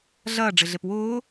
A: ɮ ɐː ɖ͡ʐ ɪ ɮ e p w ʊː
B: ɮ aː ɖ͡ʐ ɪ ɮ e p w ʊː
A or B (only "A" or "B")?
A